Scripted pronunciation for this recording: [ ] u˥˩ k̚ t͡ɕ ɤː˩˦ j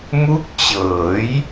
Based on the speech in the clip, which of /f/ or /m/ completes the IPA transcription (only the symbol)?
m